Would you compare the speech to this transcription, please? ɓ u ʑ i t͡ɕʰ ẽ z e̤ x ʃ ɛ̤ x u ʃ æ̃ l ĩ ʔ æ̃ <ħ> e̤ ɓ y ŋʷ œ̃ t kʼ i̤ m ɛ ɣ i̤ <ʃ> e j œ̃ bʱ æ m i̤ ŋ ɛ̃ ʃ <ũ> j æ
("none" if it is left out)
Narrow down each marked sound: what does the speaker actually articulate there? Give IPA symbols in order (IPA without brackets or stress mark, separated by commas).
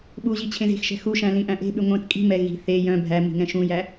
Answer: ʔ, θ, ũ